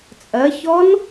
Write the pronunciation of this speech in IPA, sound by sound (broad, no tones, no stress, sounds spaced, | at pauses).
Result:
t͡sʼ ɜ ç ɔ n